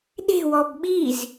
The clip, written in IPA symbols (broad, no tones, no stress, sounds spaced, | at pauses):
ɗ e̤ w ɔ b ɓ i z